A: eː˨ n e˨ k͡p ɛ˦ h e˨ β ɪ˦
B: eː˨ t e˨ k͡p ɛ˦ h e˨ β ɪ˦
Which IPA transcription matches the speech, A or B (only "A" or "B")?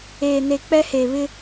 A